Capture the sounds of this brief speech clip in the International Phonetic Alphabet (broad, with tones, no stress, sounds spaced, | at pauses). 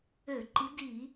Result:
ø˧˩˧ ǃ i˨˦ d i˧˩˧